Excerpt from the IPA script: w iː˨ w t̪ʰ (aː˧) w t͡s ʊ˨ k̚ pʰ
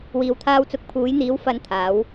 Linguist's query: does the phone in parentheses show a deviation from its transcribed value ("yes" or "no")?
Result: no